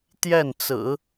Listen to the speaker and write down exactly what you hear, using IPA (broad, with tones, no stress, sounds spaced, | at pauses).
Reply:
t̪ j ɛ˥˩ n t͡s ɹ̩˨˩˦